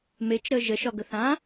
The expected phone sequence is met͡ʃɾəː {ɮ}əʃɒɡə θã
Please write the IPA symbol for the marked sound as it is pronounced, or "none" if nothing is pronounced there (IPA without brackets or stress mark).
ʒ